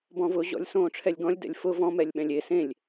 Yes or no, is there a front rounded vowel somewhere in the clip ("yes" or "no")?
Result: no